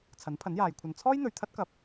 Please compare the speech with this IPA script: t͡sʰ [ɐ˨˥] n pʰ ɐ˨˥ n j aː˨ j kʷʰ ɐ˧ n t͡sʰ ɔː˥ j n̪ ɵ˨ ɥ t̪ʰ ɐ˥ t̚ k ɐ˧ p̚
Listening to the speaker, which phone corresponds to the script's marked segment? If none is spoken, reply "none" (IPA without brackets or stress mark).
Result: ɐ˨˥